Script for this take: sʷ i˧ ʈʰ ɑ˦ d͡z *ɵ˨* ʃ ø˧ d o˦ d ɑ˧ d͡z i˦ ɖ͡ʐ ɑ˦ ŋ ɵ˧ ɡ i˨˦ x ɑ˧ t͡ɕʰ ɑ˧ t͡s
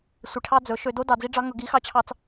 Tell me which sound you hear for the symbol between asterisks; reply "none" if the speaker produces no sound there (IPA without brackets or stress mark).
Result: ɵ˨˦